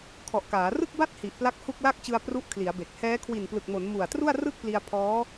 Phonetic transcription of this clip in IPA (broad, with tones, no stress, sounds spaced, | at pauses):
kʰ ɔ˨˩ ʔ k aː˩˦ r ɯ˥˩ k̚ b a˥˩ t̚ h i˨˩ ʔ p l a˦˥ k̚ h u˥˩ k̚ l a˥˩ k̚ t͡ɕ ɯ˧ a̯ p r u˦˥ ʔ kʰ l i˩˦ a̯ b e˨˩ k̚ h ɛː˦˥ kʰ w i˨˩ n p l ɯ˨˩ k̚ m o˩˦ n m u˨˩ a̯ t r u˥˩ a̯ r ɯ˥˩ k̚ p l i˧ a̯ pʰ ɔː˦˥